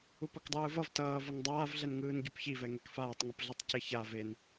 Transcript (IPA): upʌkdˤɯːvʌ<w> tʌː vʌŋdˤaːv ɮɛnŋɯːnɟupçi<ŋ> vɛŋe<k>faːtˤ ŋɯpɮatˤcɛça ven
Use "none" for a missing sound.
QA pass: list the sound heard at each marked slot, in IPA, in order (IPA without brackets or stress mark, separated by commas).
v, none, k